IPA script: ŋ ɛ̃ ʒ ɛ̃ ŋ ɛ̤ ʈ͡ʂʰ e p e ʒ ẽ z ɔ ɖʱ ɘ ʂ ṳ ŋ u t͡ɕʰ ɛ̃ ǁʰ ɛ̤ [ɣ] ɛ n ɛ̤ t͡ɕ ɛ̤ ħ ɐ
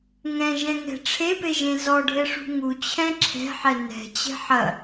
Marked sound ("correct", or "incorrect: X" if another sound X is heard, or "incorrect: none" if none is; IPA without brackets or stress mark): incorrect: ħ